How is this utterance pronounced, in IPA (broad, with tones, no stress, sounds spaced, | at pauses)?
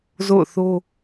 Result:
z o̰˦˨ ʊ̯ θ o˦